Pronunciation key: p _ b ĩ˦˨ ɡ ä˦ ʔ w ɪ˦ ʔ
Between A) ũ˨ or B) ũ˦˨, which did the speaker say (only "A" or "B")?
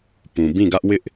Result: A